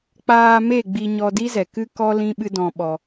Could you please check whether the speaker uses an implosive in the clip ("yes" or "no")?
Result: yes